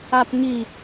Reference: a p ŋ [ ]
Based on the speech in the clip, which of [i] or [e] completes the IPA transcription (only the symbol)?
i